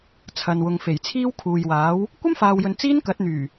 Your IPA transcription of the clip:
t͡sʰɐ˨nwʊ˨ŋ fe˨˩jt͡sʰiː˥wkʰuː˨jwaː˨˥w | kʷɐ˥mfaː˨wjɵ˨n t͡siː˥nkɐ˨˥t̚n̪yː˨˩

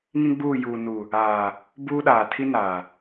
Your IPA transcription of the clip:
ŋĩ˦ɡ͡buː˦˨ juː˨nu˨ | aː˨ | buː˦ɗaː˨ tʰi˦ naː˨

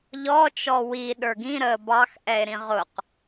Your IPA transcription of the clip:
ʎɔ t͡ʃɔwi ɗə˞ɡĩɾəː bɑxʔɛe̯ɾĩ ʁʊq

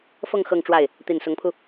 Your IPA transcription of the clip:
fɤ˥˧ŋ xɤ˥˧ŋʈ͡ʂwa˥˩ɪ̯ | t̪i˨˩nsʊ˧˥ŋpʰu˧

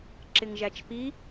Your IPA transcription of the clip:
ǁɪŋʒæt͡ʃpi

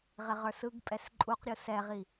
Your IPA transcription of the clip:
ʁɪʁə˞sɯɡpʼɛs ǃʼuqɾʲu sɛʁi

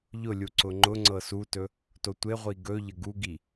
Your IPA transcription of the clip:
ʎʊlʲu ǀʊŋ͡ǃʊŋ͡ǀɤ sutɵ | totʷeʁʷi ɡɵ ʎəɡuɡi

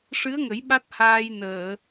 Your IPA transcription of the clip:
ʂɨ˧˥ə̯ŋə˨˩˦j ɓa˦˥t̚haː˧jnəː˨˩˨

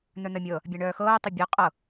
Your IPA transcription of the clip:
n̪œn̪ɜmʲɤ | bʲaɳœːxɤː tˤebʲɤ qʼɤ

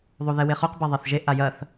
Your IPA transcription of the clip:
ðˤuðɛweχoq beðˤɛθʒe ʔajɐθ

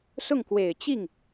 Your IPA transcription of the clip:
sʊ˥˩ŋkwe˨˩ɪ̯ t͡ɕi˥˩ŋ

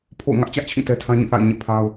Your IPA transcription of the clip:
pʰo̰˦˨ʊ̯ ŋä˦ʔt͡ɕä˦ʔt͡ɕʰĩ˦˨ tɛ˦tʰã˦ɲĩ˦˨θa̰˦˨ɪ̯ ɲɛ̰˦˨pʰa˦ʊ̯

